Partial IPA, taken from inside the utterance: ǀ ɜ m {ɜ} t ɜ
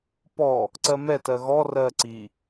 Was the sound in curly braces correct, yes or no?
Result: no